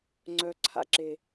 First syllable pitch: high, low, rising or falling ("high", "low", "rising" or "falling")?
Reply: low